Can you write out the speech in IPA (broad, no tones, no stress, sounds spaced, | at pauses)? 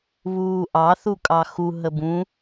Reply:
β uː ʔ ɑ θ u kʼ ɑ x u ɦ ə b ũ